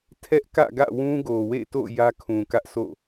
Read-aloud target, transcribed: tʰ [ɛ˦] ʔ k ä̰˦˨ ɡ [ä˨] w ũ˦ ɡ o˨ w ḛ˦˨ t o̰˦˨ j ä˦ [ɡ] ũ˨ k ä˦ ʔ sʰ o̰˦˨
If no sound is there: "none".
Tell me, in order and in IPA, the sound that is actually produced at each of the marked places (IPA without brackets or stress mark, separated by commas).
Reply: ɛ˦, ä̰˦˨, kʰ